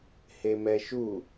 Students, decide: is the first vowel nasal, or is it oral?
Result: oral